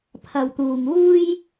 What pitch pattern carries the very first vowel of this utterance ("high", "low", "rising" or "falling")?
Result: low